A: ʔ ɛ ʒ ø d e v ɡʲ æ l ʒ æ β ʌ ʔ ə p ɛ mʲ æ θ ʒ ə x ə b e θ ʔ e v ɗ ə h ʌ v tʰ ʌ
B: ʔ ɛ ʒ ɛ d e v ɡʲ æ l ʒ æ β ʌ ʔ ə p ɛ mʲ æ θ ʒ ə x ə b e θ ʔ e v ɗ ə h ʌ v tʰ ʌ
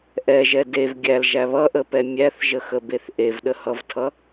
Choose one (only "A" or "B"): B